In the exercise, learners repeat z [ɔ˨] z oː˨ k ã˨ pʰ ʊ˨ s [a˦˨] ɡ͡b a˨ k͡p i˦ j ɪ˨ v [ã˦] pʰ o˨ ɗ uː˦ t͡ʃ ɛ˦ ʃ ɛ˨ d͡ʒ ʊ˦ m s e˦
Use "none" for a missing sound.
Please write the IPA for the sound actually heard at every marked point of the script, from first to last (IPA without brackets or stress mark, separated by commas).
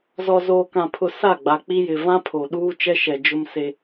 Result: ɔ˨, a˦˨, ã˦